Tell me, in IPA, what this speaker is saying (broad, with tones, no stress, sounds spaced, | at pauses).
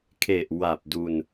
kʰ e˨˩ ʔ w a˨˩ p̚ d u˧ n